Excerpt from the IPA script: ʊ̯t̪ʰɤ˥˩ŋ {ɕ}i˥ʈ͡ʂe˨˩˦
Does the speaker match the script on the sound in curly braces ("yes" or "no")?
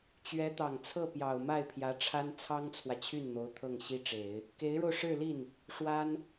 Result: yes